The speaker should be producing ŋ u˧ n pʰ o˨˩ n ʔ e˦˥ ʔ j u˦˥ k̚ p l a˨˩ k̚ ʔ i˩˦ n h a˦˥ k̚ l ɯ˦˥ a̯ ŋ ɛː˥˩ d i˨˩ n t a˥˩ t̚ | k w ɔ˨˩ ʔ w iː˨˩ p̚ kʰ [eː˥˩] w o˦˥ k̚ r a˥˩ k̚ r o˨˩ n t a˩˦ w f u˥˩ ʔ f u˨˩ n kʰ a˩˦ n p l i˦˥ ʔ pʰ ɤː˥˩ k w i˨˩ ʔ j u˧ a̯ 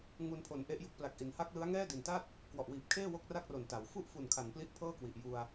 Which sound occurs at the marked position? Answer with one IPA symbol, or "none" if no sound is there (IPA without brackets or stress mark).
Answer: eː˥˩